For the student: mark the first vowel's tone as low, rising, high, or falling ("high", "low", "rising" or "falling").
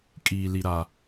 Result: low